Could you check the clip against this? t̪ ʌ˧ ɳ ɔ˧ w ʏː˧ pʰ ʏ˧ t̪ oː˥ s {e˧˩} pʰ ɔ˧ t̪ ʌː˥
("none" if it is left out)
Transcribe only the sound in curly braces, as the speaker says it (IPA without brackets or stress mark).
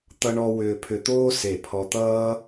e˧˩